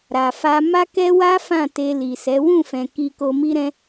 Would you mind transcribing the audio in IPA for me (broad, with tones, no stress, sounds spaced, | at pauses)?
ɾ a˨ f a˧ m a˦ k ɛ˦ w a˦ f ã˦˨ t e˧ l i˨ s ɛ˨˦ w ũ˦˨ f ɛ̃˨ k i˧ k o˧ m i˦ ɾ ɛ̃˦